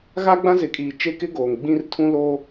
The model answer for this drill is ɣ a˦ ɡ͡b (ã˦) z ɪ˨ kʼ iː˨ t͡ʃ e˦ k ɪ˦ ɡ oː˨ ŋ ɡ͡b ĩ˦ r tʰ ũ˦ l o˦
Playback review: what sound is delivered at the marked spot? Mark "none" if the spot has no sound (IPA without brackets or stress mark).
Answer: ã˦